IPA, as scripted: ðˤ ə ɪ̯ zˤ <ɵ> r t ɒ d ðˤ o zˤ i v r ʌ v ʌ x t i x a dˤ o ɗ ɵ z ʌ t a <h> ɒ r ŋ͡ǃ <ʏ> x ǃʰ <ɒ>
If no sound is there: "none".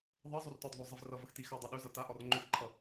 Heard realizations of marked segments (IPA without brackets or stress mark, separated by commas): o, ʔ, ʏ, ʌ